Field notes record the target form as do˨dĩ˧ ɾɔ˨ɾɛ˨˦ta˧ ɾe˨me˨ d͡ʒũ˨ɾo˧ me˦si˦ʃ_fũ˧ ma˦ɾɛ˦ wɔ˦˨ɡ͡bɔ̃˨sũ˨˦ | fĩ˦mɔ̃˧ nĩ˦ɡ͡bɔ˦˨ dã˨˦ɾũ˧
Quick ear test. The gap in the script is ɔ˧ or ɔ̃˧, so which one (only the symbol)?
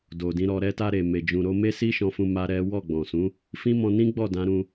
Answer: ɔ̃˧